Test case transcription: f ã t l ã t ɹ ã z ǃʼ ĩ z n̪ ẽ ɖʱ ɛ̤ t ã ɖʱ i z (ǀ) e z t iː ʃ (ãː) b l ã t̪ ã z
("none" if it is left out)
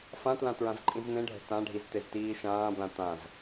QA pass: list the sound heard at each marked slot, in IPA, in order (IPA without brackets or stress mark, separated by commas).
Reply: t̪, ãː